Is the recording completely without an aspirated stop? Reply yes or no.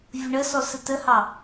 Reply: yes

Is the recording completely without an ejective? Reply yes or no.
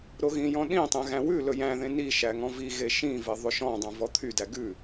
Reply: yes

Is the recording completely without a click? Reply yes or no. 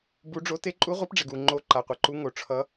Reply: no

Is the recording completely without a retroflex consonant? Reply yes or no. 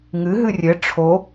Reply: no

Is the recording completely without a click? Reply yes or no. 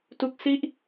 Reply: yes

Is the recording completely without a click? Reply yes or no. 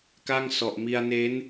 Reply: yes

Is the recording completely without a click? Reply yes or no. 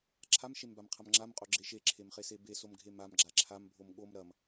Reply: no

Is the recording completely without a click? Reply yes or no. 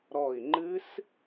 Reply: no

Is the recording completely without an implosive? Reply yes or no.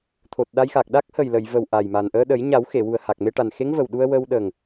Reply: no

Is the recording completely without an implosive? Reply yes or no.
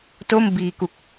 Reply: yes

